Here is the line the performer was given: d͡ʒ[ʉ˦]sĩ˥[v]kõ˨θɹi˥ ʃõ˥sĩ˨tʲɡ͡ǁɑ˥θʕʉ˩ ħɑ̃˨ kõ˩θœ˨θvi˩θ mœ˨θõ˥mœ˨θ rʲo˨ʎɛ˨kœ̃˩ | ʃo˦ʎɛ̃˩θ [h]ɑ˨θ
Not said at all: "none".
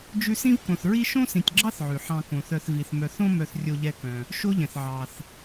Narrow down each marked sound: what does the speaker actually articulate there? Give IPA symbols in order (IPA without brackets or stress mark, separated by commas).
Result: ʉ˦, v, ʕ